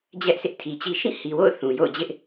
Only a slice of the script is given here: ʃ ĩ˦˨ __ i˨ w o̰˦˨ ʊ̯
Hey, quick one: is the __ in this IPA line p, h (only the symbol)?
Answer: h